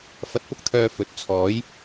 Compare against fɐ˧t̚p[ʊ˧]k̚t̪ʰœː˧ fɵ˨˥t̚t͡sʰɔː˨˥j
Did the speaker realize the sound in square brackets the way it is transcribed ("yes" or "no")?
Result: no